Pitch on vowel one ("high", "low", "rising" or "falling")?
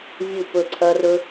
falling